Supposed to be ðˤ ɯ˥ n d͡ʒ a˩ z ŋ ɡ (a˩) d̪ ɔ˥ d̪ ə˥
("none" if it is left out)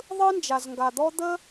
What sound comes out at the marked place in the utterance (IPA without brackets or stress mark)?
a˩